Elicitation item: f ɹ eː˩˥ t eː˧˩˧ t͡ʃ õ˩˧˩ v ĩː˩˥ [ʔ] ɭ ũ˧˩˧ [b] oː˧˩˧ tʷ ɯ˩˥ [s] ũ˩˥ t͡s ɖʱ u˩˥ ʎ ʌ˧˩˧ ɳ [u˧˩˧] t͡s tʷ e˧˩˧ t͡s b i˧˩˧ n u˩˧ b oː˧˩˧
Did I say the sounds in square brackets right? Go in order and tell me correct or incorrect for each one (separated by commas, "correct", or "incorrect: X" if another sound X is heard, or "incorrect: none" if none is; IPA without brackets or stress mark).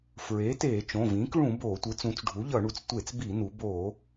incorrect: k, correct, incorrect: t͡s, incorrect: u˩˧